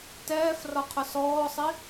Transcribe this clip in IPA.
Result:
tɛːf rɒqʰʊsɔːsˤi

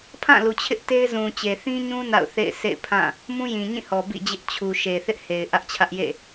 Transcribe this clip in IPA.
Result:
pʰã˦˨lu˨t͡ɕʰɪ˦ʔ te˦ɪ̯ zũ˨t͡ɕe˨θĩ˦ɲũ˦ na̰˦˨ʊ̯θḛ˦˨ɪ̯ sʰḛ˦˨ɪ̯pʰã˦˨ | mũ˦jĩ˨ ɲĩ˦˨hɔ˨ bḭ˦˨d͡ʑɪ˦ʔ t͡ɕʰu˨ ʃe˨θɪ˦ʔhe˨ɪ̯ ʔä˦ʔt͡ɕʰä˦ʔ jḛ˦˨

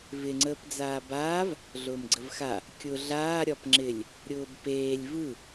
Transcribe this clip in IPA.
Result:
vɪŋ͡ǀəːpd͡zaː baːv | ɮʊːmɡ͡ǀəvxa | kʲʊ ɮaː ɾʲɒpŋ͡ǁɪlʲ | ɾʲʊːbpeːlʲ vɯ

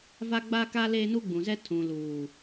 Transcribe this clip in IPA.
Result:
va˦ ɡ͡ba˦ka˦ leː˦nu˦ɡ͡bũ˨zɛ˦ tʰũ˨luː˨

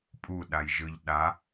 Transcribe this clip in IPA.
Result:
pʼuɗajʒɯʎ ɗa

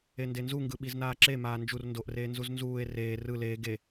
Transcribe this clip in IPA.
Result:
endenzuŋɡɯ ɓiznaːǁe maːnd͡ʒur ndoʔreːnzuz nzuːe̯ reː rɯ leː ɡe

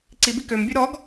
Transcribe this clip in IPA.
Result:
ǀibi kømbʲʉ ɾɔɡ

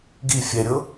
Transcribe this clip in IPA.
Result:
ɡi fʲɛɾʲɤ

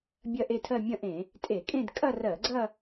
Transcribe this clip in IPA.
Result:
bʲɐ˥˧ʔe˥˧tʰɜ˥˧ mʲɐ̃˥˧ʔẽ˧˩˧ | tʼe˧˩˧kʼẽ˥˧d kʼɐ˥˧rɜ˧˩˧ɡ͡ǀɐ˥˧

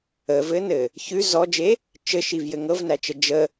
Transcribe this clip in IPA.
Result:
əvɘnɘ | çʉ zɔd͡ʒe | t͡ʃɘʃivjɘ ŋɤvnæt͡ʃə d͡ʒə

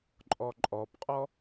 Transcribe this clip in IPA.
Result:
ǃʼɔǃʼɔpqʼɔ

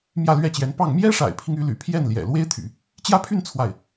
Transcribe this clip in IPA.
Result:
mjä˥˧lɥɛ˥˩t͡ɕjɛ˧˥n pɑ˥˩ŋ mjɛ˥ʂa̰˨˩ɪ̯pʰi˦ŋ y˧˥ly̰˨˩pʰjɛ˥˩n ljɛ̰˨˩lwe˥ɪ̯t̪ʰy̰˨˩˦ | t͡ɕjä˥pʰy˥˧n t͡sʰwa˥˩ɪ̯

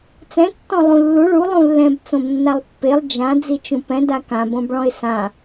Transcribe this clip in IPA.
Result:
t͡sɛ̃ tːɔ̃lˠũlːu ɭu lˠũlːɛ̃b t͡sõbnːalˠpːelˠ d͡ʒã d͡zit͡ʃũpɛ̃ dakãb õbɭɔ̃ɪ̯sã

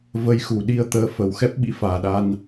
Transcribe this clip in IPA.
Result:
və˧jxu˨˩ ɗi˧ə̯t̪əː˨˦fə˨˩w xɛ˦˥p̚ɓḭ˧˥faː˨˩ɗa˧n

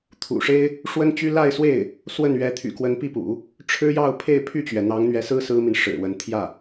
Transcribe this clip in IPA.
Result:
t̪ʰṵ˨˩ʂe˥ɪ̯ | ʂwə˥nt͡ɕy˥ la˥˧ɪ̯swe˥˩ɪ̯ | swə˥˩n ɥɛ˧˥t̪ʰy̰˨˩kwə˧˥n pi˥˩pṵ˨˩˦ | ʈ͡ʂʰɻ̩˥jɑ˥˧ʊ̯ pʰe˥˧ɪ̯pʰy˥˩t͡ɕɥɛ˩ n̪ɑ˧˥ŋn̪ɥɛ˧˥sɹ̩˥ sɹ̩˥mi˨n ʂɻ̩˨˩wə˧˥n t̪ʰjä˥˩

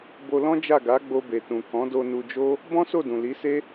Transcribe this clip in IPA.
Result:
bo˧lɔ̃˦d͡ʒa˦˨ ɡa˨˦ɡ͡bo˧be˨tũ˨ kɔ̃˨˦do˧nu˧d͡ʒo˦ | bɔ̃˦so˦˨dũ˨ li˨˦se˦

